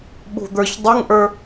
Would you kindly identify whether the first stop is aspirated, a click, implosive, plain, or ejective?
implosive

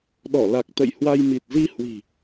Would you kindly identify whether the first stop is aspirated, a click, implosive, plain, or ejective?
implosive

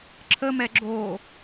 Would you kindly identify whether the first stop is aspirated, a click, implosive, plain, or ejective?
click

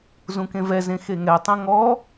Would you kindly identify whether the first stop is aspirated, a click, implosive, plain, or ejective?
plain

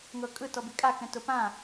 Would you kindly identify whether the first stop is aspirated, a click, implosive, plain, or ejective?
ejective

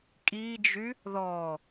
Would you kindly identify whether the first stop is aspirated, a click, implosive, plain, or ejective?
ejective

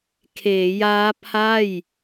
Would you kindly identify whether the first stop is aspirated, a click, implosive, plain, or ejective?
aspirated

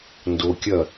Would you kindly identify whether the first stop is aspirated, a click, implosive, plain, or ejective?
plain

